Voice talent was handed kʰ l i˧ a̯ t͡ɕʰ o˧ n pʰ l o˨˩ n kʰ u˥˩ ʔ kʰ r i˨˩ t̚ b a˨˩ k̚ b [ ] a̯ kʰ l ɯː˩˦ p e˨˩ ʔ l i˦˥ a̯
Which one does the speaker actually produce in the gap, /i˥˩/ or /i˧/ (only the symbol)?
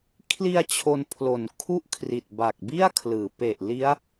i˥˩